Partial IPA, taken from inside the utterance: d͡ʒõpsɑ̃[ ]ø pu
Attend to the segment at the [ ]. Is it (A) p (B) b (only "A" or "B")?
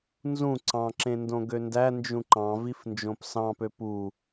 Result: A